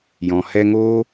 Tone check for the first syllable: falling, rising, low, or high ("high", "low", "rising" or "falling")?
low